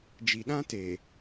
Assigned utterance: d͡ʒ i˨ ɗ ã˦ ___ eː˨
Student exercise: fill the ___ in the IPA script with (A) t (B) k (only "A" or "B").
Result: A